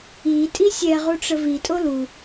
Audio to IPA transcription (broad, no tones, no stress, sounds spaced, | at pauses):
i tʼ i sʲ ɛ ʁ u ʈ͡ʂ ə v i tʼ o l u